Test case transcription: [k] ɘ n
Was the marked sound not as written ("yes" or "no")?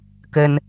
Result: no